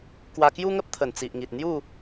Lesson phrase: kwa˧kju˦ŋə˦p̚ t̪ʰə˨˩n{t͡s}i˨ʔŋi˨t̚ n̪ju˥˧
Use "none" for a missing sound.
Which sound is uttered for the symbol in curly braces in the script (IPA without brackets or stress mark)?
t͡s